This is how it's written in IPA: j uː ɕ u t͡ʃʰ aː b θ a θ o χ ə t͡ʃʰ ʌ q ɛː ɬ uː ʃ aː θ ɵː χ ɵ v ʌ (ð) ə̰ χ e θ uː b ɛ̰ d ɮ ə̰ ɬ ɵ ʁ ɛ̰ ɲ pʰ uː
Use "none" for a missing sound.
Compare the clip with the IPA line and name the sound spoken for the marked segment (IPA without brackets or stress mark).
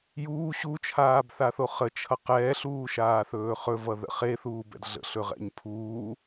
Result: ð